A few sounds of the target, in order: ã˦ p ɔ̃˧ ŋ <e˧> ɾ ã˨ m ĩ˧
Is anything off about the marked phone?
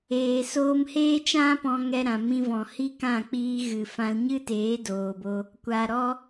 yes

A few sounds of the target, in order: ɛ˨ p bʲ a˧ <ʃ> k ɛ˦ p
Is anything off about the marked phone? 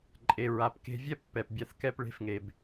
yes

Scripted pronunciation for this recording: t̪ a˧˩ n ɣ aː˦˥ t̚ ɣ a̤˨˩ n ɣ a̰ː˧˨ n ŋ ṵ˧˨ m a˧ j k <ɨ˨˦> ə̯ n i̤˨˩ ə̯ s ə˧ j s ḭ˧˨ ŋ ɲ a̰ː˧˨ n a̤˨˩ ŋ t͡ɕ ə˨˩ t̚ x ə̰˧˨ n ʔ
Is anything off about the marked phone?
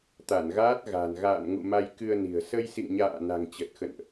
yes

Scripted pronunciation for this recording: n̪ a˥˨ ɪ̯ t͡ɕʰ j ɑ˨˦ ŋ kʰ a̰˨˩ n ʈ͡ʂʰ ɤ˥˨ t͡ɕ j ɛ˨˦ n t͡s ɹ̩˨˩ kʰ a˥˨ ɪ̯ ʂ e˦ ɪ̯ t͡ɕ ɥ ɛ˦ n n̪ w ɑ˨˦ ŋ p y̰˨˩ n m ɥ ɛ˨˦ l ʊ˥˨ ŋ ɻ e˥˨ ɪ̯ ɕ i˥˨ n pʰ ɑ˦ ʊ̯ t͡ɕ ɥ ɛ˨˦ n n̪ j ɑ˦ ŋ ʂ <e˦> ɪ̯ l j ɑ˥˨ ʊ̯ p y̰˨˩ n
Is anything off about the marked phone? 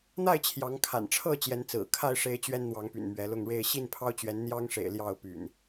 yes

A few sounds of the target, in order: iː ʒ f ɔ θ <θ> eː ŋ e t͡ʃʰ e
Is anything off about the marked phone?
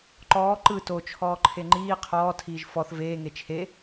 yes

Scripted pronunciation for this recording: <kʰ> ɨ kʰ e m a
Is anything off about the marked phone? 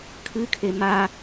no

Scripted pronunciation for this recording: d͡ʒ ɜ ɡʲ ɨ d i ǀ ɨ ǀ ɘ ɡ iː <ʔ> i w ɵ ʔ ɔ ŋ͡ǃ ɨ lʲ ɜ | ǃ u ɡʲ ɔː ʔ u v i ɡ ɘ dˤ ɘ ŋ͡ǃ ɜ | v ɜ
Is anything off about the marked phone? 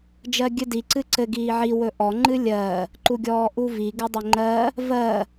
yes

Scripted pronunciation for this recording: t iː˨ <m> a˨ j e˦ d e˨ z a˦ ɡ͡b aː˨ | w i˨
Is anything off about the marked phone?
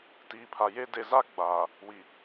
yes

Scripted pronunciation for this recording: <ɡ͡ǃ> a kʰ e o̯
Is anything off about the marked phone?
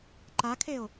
yes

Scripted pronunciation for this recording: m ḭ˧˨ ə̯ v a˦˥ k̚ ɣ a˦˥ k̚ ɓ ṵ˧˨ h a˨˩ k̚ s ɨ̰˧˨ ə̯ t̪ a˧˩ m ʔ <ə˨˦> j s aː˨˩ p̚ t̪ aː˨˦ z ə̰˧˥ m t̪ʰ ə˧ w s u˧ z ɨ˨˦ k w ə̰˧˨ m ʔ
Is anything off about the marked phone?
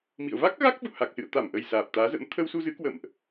yes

